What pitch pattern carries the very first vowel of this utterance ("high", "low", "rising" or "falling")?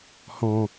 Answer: low